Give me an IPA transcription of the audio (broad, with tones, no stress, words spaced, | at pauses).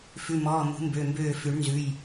fʉ˩˧˩mɔː˩˧˩ mṳ˨˩˦ mbø˩˧˩mbøː˧˩ fʉ˨˩˦ɳ nzʉ˩˧˩j